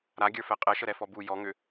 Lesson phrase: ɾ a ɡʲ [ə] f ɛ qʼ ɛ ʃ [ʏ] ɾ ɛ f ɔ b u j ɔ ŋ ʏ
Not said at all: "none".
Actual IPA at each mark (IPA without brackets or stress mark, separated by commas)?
ə˞, ə